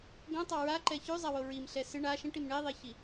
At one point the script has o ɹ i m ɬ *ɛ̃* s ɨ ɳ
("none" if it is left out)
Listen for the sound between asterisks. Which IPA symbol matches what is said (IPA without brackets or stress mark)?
ɛ